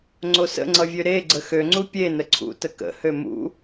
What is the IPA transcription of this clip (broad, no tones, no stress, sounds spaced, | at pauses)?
ŋ͡ǀ o s ə̰ ŋ͡ǀ ʌ vʲ ø ɾ e ɡ͡ǀ ə x ø ŋ͡ǀ u pʲ e n ə ǀʰ ṵ t ə k ə̰ h ø m ṵ